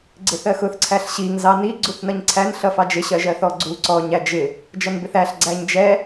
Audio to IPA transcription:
ɡ͡ǀ ɪ θ ɜ x ʊ θ ǀʰ æ ɬ ɕ i ŋ z ɑ n i ɡ͡ǀ u θ n ʌ ɲ ǀʰ æ n ɬ ʌ f ɑ d͡ʒ ɪ ɕ ɜ ʒ ɜ θ ɔ ɡ͡ǀ u ǀ ɔ ɲ æ d͡ʒ ɪ | d͡ʒ ʌ n b ɪ θ æ ɬ ɡ͡ǀ æ ɲ d͡ʒ ɛ

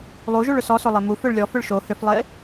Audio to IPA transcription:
lˠ u ʒ u ɭ ʏ s ɔ s o lˠ e m u f ʏ ɭ lʲ ɔ f ʏ ɭ ʃ o h ʏ f lˠ e

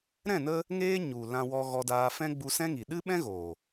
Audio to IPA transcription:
ɾ ɛ̃˦˨ n ə˧ | ŋ eː˦ ɲ u˨ l ã˧ w ɔ˧ ɣ ɔ˧ d aː˧ f ɛ̃˦ ɡ͡b u˧ s ɛ̃˦ ŋ i˨ ɗ ɨ˦ ɓ ɛ̃˦ ɣ o˨

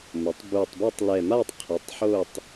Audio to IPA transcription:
m ʊ˩˥ tˤ b u˨˩ tˤ b ɐ˦˨ tˤ l ɛ˨˩ m a˦˨ tˤ qʰ ɐ˩˥ tˤ ħ o˦˨ tˤ

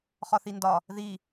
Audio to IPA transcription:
χ ɒ θ i n d ɒ | ð i

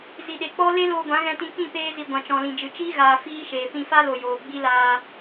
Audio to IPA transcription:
z i˨ ɗ e˨ k͡p ɔ˦ l e˦ l oː˧ ɡʷ ã˨˦ ɣ ɛ̃˧ t ĩ˧ k ĩ˦˨ p eː˧ z i˨ ɡʷ ã˨ t͡ʃ ɔ̃˨ l ĩ˨ d͡ʒ ɨ˨ t͡ʃ iː˦ ɣ aː˨ f iː˦ ʃ eː˨ p ĩ˧ f a˦ l o˨ j oː˨ ɡ͡b i˦ l aː˧

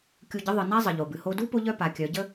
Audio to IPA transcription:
kʲ u˧ ɟ ə˧˥ ðˤ ɨ˩ n a˥ zˤ ə˩ ʎ o˩ b ɨ˩ h o˧ d u˥ p o˥ ʎ œ˥ p a˩˧ kʲ œ˩˧ ɟ ə˥

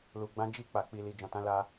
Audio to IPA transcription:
l u˨ ɡ͡b ã˧ d͡ʒ i˧ k͡p a˨ k͡p i˨ l i˨ d͡ʒ ɔ̃˨ t ã˨˦ l a˧

